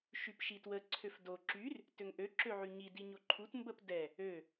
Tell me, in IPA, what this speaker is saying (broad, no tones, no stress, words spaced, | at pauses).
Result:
ʃypʃitwə ǀʰøfdo ǁyr | tøŋʔø ǁøʕyɲi diɲoǃʰut mbəpdɛ | ø